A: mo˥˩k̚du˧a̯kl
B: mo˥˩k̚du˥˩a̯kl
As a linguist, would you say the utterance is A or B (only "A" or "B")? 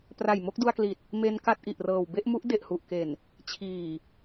A